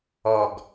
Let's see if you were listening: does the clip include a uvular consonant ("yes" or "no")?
no